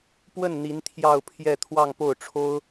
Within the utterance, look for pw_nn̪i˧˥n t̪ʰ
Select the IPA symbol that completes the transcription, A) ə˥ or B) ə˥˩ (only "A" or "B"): B